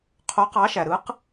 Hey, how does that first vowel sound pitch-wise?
rising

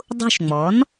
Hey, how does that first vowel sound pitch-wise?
falling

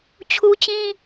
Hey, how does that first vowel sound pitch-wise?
high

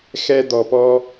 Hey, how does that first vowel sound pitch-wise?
high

